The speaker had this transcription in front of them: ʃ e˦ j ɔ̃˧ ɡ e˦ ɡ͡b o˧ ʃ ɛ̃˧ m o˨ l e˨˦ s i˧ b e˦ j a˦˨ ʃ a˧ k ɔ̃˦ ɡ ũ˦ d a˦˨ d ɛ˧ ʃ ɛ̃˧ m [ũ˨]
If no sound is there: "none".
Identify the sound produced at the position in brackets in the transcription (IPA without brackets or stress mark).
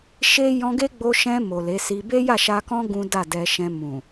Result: ũ˨